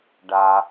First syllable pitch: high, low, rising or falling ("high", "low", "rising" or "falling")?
low